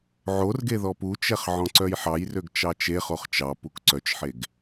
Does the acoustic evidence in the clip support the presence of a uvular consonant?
yes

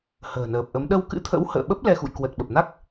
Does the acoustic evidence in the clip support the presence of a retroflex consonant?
no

